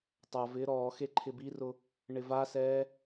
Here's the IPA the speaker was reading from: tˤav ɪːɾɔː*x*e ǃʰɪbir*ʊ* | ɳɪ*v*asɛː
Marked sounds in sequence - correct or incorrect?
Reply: correct, correct, correct

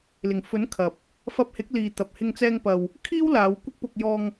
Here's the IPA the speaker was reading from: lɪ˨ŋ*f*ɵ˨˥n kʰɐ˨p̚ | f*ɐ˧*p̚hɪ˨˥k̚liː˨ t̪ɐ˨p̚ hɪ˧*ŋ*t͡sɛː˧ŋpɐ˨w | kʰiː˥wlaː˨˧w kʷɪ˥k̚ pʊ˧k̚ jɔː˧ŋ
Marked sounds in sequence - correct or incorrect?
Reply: correct, correct, correct

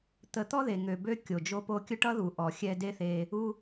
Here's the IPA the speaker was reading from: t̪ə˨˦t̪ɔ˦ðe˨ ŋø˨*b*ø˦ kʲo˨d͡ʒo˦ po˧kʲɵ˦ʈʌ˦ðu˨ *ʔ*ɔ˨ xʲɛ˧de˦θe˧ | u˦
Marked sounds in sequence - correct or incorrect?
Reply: correct, correct

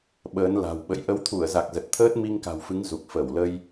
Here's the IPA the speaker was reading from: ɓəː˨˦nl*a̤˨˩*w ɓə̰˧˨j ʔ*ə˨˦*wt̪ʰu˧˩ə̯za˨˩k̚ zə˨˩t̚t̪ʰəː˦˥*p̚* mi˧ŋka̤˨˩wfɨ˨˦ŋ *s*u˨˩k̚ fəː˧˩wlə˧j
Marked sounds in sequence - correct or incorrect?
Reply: correct, correct, incorrect, incorrect

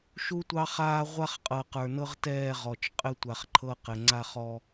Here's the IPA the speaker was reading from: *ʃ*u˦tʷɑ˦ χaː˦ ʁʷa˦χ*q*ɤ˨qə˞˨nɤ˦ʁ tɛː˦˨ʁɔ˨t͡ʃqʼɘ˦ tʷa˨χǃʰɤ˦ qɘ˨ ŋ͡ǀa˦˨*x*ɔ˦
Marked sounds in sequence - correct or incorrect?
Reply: correct, incorrect, incorrect

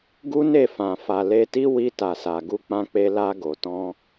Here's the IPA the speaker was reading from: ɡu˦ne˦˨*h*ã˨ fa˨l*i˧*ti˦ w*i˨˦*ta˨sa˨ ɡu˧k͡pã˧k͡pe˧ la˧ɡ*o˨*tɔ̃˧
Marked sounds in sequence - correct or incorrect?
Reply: incorrect, incorrect, incorrect, correct

